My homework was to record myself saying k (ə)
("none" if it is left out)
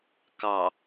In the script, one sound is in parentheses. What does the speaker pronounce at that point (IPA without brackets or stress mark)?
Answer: ɑ